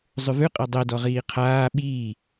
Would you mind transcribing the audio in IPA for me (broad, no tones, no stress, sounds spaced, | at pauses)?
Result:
zˤ ʉ v ʉ qʼ a dˤ ɛ d ɔ ʁ iː qʰ aː ɓ iː